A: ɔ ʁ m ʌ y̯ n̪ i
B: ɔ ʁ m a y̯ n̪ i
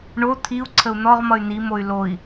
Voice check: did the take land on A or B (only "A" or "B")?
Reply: A